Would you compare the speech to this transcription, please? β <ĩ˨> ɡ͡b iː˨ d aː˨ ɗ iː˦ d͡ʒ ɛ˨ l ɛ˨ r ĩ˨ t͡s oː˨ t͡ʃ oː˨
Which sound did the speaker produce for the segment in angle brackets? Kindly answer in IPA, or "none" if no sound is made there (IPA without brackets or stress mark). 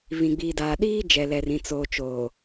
ĩ˨